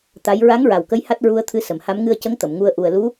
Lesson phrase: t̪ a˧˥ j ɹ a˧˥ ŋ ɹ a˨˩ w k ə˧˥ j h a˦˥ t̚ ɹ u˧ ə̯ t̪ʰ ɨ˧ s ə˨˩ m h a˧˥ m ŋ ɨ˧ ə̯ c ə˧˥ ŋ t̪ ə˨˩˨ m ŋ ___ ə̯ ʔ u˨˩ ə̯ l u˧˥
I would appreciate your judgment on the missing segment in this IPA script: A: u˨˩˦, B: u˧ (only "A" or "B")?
B